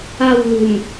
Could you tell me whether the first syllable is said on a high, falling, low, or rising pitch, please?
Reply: falling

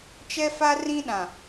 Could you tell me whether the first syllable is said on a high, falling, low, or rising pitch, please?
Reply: high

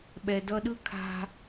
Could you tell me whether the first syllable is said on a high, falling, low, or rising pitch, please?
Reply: low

